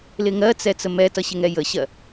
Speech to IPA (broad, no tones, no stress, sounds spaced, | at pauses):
l ɪ ŋ ɜ t͡s ɛ t͡s ə m ɛ t ʌ ɕ ɪ ŋ ɛ j ə ɕ ɜ